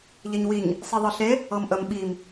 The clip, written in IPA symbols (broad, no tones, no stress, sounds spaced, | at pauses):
ʎ e ɲ w i ɲ | sˤ i ðˤ ɤ ɬ e | ɤ m ʔ ə m ɓ i m